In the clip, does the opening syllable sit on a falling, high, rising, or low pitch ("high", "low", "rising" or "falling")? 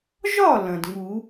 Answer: falling